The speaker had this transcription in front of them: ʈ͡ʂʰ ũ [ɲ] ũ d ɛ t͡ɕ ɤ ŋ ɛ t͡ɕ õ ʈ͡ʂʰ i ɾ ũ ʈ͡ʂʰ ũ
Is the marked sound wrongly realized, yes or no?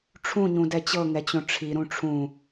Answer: no